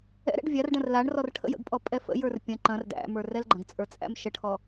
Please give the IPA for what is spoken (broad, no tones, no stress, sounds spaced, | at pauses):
ɛ̰ ɾ ɛ̰ ɖ vʲ a r ɖ ɐ̃ r l a ɳ r ɔ r ʈʰ ə̰ j ə̰ ɡ pʼ ɔ pʼ ɛ f ə̰ j ə˞ r pʲ ɐ̃ ǃ ɐ̃ r d æ̰ m ə˞ r ɛ l ɡ͡ǃ ɐ̃ ɡ t͡sʼ ə˞ t͡sʼ æ̰ m ʃ ə ʈʰ ɔ